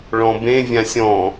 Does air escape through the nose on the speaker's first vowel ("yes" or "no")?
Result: yes